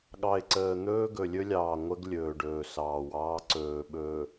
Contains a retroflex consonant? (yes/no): yes